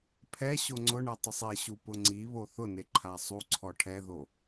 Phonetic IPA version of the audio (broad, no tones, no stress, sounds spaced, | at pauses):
pʰ ɛ ɕ o ŋ͡ǀ ʊ ɳ ɛ tˤ ʊ sˤ e ɕ u p ʊ ŋ͡ǀ i β o θ ʊ n e ǃʰ a sˤ u ǀʰ ɔ ʈʰ ɛ ð o